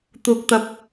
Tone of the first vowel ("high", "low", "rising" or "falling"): low